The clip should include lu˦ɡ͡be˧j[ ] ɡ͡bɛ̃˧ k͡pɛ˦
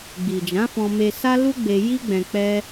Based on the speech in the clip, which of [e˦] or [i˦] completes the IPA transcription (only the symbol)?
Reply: i˦